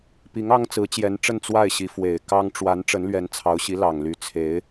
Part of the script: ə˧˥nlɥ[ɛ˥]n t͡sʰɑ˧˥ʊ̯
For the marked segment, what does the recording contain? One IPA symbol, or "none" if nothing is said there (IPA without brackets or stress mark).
ɛ˧˥